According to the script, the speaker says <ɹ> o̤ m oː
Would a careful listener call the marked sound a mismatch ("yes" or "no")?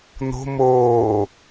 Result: yes